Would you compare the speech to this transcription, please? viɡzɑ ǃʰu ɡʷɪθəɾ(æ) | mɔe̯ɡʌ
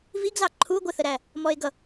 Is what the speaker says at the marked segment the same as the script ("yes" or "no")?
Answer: yes